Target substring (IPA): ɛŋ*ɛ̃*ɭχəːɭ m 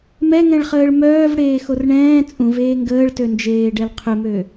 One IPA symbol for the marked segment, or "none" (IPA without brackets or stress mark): ɛ̃